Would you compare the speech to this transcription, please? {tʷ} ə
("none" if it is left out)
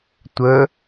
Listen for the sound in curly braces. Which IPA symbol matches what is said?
tʷ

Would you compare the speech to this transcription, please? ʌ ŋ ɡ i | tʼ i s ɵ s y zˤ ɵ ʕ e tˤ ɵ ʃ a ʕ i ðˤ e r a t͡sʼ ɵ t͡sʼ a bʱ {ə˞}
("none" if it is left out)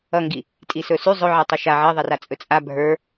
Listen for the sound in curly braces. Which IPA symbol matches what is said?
ə˞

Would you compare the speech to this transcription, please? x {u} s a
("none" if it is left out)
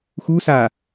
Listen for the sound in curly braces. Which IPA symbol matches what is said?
u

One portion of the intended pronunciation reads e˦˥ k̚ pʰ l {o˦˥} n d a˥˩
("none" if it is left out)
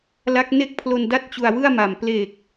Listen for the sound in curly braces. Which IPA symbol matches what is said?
o˧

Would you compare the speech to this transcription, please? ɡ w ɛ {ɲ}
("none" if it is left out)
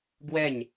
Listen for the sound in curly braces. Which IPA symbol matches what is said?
ɲ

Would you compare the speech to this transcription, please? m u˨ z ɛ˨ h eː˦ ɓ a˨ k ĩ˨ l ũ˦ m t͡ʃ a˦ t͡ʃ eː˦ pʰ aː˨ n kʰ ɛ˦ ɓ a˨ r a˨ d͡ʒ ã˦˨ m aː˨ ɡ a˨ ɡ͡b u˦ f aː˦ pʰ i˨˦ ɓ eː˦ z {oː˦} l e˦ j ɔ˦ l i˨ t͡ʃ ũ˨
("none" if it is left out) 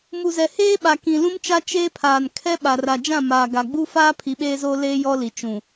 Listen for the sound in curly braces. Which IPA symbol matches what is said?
oː˦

